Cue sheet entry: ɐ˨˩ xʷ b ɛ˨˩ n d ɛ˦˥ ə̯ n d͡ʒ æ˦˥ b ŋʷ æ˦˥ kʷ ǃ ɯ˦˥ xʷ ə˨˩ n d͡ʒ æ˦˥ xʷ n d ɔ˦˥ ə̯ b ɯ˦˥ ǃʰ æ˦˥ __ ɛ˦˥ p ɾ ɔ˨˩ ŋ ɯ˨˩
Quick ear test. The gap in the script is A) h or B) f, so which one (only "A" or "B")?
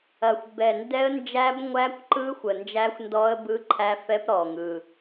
B